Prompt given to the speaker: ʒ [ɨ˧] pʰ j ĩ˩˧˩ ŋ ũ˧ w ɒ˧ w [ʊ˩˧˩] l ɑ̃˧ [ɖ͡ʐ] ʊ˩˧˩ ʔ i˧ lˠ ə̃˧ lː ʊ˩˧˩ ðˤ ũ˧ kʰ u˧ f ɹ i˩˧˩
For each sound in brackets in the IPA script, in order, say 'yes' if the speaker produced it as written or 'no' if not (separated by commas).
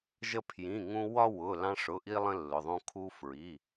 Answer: no, yes, no